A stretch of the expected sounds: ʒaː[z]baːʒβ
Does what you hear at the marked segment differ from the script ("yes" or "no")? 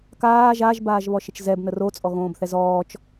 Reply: yes